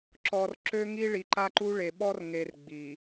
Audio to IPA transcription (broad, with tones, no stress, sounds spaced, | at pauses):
ǁ ɔ˨ r ǁ ø˦ ŋ i˦ ɭ i˨ ǃ a˦ ǃ u˦ ɭ e˨ ɓ ɔ˦ r ŋ e˨ r ɡ͡b i˨